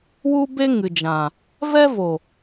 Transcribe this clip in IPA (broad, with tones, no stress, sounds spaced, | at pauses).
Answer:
w u˦ b e˦ ŋ ɨ˨ d͡ʒ ã˨ | v ɛ˦ v o˨